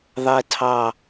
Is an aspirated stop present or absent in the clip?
present